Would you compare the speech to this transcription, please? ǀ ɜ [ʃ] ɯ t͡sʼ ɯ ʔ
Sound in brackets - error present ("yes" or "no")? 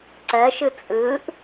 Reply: no